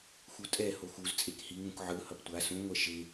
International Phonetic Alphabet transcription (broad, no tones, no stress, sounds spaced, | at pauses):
x u tʼ ɛ h o x u z t͡sʼ e k h i ŋ ũ k ʕ ɯ h ʌ p tʷ a s ũ ŋʷ ɛ ʃ e